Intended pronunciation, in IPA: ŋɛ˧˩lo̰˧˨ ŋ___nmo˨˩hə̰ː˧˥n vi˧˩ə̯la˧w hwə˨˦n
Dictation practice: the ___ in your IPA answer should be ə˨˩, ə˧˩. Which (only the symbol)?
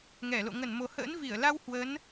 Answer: ə˧˩